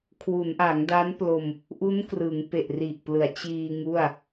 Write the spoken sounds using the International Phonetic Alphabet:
kʰ w u˩˦ n ʔ a˩˦ ŋ d a˦˥ n p l o˧ m | ʔ u˦˥ n k r ɯ˩˦ ŋ p e˨˩ ʔ r i˨˩ ʔ p l ɯ˩˦ a̯ t͡ɕ iː˧ ŋ u˥˩ a̯

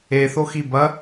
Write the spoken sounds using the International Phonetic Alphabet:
e θ o x i b ɐ

